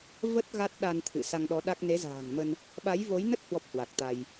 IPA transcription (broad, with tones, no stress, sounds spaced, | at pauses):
v ə˦˥ t̚ ɣ a˦˥ t̚ ɗ a˧ n t̪ʰ ɨ̰˧˨ s a˧ ŋ ɗ ɔ˨˦ ɗ a˦˥ k̚ n e˨˦ z a̤ː˨˩ ŋ m ə˧ n | ɓ a˨˦ j v o˨˦ j n ə˦˥ t̚ h w ɔ˦˥ p̚ h w a˨˩ k̚ t̪ a˧ j